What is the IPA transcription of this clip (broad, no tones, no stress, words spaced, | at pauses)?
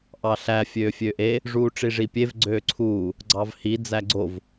ʔɑɬæ fʲøːfʲøːʔe | ʐuːʈ͡ʂiʐipʲev ɡ͡ǀøːǀʰuː | ɡ͡ǀɑvhi d͡zæɡ͡ǀov